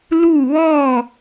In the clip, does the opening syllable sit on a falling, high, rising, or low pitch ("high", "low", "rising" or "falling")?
falling